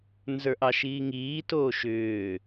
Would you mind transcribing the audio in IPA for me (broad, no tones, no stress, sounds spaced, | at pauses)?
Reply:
n z ə˞ ʔ ɑ ʃ iː ŋ iː t oː ʃ ʏː